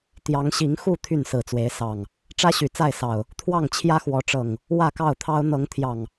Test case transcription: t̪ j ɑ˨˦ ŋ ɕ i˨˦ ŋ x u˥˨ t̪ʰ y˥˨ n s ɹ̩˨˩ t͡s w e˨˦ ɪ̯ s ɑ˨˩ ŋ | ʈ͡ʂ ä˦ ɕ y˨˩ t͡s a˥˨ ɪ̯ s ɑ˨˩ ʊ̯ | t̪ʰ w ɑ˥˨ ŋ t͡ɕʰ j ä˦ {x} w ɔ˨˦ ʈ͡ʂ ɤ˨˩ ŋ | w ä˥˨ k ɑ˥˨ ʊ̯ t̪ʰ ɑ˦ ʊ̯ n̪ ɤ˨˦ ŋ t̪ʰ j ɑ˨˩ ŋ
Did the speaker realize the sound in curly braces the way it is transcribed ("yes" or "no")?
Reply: yes